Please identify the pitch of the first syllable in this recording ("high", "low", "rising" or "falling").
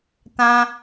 high